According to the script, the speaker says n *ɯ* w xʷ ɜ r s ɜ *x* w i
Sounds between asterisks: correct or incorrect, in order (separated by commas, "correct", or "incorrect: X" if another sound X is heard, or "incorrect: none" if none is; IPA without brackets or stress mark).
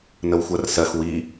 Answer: incorrect: ə, correct